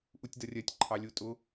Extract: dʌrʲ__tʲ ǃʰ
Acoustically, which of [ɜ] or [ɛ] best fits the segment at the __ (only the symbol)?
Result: ɜ